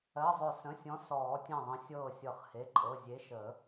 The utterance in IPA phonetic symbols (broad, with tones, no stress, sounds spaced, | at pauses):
ɜ˩˧˩ zˤ ʏ˨˩˦ s ə̃˩˧˩ sʲ ɔ̃˨˥ s ɔː˨˩˦ tʲ ẽ˧˩ ðˤ ə̃˨˥ sʲ ɤː˧˩ sʲ ɤ˨˩˦ χ h e˩˧˩ ǃʼ ɤ˩˧˩ zʲ e˨˥ ʃ ə˨˩˦